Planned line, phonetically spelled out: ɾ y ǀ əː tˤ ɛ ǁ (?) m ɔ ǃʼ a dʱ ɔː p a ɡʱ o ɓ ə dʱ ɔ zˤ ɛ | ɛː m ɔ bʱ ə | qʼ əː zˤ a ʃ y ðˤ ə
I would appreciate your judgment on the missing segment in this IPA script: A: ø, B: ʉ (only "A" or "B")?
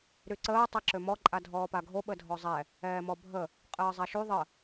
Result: A